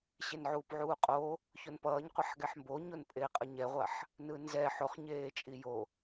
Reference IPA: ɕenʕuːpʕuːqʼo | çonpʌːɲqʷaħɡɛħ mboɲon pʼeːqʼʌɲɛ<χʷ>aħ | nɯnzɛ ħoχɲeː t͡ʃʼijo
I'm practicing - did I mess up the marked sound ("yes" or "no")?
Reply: yes